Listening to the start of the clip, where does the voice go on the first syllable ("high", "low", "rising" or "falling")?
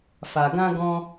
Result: low